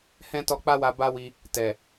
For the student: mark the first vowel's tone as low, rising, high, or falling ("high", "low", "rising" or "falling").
high